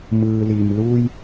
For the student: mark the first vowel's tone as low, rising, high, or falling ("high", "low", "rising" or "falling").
low